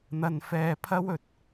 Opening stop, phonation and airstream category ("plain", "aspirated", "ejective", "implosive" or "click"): aspirated